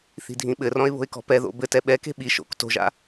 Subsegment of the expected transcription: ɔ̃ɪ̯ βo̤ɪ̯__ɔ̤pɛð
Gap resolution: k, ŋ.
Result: k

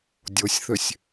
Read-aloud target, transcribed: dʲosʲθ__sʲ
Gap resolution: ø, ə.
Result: ø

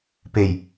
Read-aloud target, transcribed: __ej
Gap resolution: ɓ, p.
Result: p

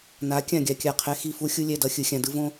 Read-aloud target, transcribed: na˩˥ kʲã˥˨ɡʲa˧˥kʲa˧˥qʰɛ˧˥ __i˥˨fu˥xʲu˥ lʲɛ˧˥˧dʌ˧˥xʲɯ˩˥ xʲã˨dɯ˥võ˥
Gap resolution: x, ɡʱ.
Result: x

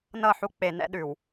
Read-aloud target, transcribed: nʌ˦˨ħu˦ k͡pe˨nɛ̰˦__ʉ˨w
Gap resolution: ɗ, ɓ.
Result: ɗ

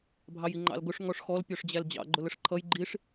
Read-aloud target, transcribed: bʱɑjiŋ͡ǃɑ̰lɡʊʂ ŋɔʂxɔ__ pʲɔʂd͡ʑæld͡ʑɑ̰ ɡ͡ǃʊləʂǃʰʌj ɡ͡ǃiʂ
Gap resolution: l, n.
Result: l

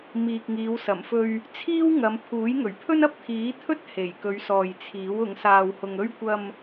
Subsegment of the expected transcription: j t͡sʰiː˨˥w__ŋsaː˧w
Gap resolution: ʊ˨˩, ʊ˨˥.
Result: ʊ˨˥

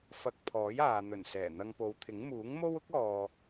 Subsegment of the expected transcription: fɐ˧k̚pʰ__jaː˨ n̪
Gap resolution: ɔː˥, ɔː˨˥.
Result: ɔː˨˥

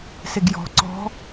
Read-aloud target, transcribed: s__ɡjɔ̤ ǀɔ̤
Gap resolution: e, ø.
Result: e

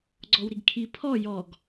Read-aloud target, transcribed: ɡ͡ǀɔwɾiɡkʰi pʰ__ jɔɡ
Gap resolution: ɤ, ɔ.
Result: ɔ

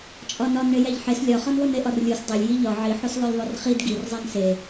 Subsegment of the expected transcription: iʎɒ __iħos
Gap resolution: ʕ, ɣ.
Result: ʕ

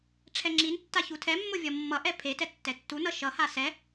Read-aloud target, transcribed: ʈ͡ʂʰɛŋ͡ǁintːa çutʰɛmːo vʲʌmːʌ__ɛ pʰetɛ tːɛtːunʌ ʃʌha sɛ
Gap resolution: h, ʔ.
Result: ʔ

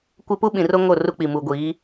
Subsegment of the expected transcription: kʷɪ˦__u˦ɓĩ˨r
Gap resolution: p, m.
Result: p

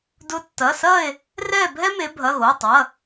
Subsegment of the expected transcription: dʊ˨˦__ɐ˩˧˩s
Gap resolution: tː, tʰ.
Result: tː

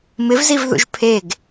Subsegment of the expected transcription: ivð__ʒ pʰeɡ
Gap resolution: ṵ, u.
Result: ṵ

